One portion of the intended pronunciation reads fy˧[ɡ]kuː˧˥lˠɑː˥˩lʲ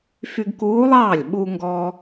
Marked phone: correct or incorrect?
correct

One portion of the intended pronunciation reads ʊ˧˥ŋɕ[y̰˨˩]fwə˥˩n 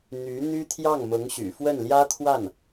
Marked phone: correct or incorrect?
correct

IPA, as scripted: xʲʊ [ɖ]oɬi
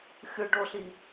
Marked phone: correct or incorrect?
correct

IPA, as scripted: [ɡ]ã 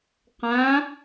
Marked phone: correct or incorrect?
incorrect: q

